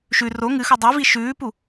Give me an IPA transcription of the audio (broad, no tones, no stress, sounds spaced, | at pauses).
ʃ ʉ r o ŋ ɨ x u dˤ ʉ v i ʃ ʉː p u